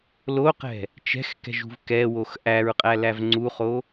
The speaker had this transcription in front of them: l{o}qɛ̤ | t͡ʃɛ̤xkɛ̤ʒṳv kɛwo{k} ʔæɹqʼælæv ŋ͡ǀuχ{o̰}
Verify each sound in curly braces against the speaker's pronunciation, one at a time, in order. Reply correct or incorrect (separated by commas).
correct, incorrect, incorrect